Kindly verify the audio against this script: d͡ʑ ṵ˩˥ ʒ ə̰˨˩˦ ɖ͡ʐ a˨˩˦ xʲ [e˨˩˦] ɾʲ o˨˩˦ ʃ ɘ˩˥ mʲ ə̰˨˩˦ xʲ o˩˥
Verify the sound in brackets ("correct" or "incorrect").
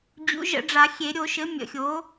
correct